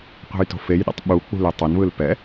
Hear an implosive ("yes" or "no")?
yes